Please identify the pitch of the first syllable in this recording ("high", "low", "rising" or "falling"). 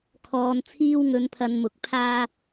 low